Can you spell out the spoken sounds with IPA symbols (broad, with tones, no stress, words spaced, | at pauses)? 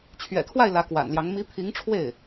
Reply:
t͡ɕʰɥɛ̰˨˩t̪ʰwa˥˩ɪ̯ lä˧˥kwa̰˨˩nljɑ˧˥ŋ mi˧˥pʰi˧˥ŋʈ͡ʂʰwe˥˩ɪ̯